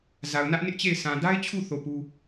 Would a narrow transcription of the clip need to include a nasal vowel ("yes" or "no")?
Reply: yes